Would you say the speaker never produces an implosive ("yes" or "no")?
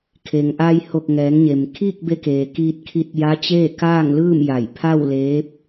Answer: yes